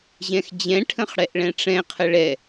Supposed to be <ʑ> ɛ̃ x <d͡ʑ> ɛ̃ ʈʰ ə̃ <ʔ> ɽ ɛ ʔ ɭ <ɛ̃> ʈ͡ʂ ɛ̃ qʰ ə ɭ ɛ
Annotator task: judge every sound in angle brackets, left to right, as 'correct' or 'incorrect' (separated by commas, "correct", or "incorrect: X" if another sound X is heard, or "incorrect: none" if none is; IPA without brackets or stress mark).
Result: correct, correct, incorrect: χ, correct